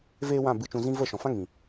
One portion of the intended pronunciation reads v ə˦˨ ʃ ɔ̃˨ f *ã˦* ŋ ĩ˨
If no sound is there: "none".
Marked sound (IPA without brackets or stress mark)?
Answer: ã˦